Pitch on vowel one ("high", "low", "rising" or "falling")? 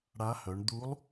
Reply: rising